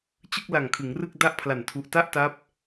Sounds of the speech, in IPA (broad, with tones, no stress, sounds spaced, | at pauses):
t͡ɕ ɯ˥˩ k̚ l a˨˩ ŋ kʰ ɯ˩˦ ŋ r ɯ˥˩ k̚ d a˥˩ ʔ pʰ l a˨˩ n tʰ u˨˩ ʔ t a˥˩ ʔ t a˦˥ p̚